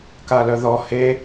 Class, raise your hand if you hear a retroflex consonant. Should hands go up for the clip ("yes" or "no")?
no